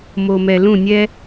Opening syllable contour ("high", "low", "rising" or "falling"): low